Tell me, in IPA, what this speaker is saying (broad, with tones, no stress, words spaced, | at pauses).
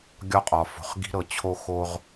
ɡʲɒ˧qʼɒ˨fo̤˨χ ɡi̤˧ɾɤ˨t͡ɕʰo˧ xo˦ʁ